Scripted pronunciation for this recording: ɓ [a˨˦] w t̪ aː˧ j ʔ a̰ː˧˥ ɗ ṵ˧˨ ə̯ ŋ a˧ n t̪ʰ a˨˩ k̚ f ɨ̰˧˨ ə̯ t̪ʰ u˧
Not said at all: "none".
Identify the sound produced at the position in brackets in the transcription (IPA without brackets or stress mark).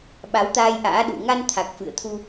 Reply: a˨˦